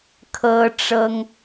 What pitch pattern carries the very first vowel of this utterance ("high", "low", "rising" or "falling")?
high